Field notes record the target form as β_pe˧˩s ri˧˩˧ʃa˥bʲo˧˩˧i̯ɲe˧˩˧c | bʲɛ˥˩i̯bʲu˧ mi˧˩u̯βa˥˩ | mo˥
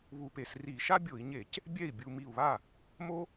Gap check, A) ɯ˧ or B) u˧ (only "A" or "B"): B